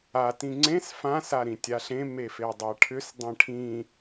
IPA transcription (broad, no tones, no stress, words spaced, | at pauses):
a tĩŋ͡ǀẽs fã saɾĩtʲaɬẽ mefedˤaʈʰʏs dˤẽʈʰĩ